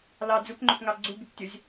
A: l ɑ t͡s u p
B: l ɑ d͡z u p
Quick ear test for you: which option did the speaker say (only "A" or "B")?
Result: B